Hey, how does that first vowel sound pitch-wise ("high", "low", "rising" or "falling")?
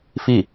falling